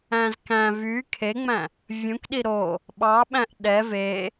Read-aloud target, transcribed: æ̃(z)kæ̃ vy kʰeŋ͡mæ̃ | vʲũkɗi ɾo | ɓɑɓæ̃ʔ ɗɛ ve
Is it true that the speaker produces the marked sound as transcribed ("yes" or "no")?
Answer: yes